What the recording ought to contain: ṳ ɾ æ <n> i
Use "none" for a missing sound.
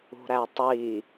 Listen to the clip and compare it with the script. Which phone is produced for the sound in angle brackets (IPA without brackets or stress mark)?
tˤ